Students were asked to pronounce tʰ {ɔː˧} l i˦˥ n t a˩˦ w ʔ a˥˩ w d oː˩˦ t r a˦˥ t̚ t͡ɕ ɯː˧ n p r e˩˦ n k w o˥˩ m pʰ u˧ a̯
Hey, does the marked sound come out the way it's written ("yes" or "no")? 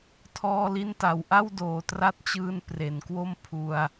yes